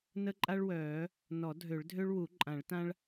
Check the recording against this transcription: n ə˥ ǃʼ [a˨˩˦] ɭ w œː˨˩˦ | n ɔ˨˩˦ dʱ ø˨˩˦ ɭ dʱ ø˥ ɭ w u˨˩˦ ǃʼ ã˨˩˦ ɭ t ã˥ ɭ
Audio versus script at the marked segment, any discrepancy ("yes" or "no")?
yes